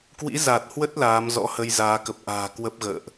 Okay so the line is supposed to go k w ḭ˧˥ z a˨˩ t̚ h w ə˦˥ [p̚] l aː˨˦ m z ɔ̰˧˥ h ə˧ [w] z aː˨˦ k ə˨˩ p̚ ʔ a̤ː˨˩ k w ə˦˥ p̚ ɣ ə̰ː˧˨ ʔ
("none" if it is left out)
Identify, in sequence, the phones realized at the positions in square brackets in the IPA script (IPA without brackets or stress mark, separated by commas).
t̚, j